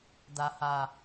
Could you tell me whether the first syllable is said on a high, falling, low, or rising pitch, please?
low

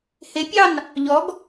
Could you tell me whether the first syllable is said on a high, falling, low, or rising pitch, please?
rising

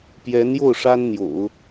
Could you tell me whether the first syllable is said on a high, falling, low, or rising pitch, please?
rising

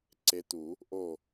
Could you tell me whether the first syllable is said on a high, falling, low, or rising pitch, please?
rising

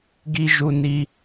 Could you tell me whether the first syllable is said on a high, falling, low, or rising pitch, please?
high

